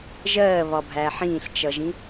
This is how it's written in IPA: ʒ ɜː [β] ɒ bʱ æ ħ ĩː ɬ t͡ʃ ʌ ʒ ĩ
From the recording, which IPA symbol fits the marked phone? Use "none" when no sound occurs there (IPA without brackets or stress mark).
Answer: β